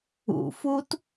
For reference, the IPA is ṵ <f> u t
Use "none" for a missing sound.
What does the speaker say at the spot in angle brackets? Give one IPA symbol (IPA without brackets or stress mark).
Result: f